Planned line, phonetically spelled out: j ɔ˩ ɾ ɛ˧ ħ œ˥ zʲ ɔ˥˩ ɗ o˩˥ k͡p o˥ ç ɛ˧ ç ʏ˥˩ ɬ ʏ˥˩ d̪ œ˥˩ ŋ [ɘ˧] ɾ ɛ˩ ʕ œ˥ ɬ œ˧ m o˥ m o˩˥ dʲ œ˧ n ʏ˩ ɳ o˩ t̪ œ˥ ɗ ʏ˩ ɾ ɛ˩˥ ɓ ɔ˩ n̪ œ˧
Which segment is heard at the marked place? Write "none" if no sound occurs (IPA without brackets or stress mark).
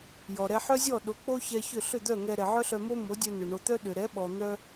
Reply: ɛ˧